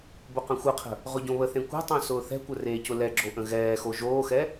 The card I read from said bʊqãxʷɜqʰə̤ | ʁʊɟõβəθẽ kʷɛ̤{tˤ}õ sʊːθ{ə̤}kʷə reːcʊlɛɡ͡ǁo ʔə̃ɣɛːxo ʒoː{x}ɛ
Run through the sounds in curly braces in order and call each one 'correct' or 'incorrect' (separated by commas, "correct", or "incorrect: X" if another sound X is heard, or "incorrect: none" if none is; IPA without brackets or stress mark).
correct, incorrect: ɛ̤, correct